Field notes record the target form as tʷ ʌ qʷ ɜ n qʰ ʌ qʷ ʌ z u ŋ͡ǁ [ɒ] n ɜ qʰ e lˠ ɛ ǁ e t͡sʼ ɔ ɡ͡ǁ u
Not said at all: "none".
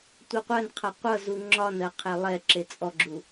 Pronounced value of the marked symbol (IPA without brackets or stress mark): ɒ